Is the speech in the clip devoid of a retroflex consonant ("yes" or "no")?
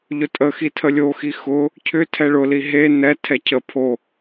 no